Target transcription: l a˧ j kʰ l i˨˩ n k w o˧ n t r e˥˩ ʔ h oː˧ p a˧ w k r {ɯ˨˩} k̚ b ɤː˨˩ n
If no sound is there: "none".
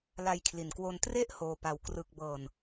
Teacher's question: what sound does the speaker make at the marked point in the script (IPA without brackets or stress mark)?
ɯ˨˩